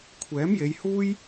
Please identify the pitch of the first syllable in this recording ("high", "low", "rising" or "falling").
rising